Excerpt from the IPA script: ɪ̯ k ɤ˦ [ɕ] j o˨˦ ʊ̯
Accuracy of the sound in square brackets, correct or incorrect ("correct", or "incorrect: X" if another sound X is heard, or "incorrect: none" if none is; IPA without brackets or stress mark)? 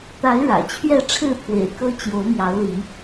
incorrect: t͡ɕ